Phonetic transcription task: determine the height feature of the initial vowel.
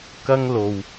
low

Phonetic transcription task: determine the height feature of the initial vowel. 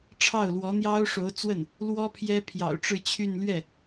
low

